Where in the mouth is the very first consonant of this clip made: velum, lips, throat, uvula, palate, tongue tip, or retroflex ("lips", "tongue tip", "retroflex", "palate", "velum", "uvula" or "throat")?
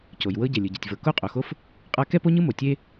palate